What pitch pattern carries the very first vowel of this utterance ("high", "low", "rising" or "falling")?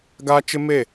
high